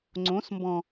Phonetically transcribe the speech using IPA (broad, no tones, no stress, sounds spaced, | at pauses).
ŋ͡ǀ õ s m b ɔ̃